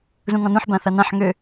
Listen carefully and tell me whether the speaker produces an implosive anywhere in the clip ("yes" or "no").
no